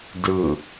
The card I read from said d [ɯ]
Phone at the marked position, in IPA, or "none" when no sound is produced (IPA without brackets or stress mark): ɯ